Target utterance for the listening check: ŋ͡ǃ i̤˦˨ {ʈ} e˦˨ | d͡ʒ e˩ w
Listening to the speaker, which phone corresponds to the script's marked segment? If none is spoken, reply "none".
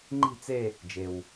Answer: t͡s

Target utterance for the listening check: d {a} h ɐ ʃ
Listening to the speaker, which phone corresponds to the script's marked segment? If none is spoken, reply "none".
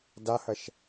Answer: a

